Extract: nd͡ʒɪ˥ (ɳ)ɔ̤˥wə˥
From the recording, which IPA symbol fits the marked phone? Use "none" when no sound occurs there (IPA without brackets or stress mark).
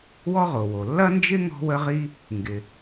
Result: ŋ